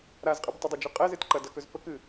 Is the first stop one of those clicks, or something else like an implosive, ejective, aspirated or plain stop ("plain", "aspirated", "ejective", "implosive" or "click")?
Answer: ejective